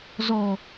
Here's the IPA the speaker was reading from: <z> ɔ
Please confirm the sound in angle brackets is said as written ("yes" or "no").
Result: yes